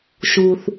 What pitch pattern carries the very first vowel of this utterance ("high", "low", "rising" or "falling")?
high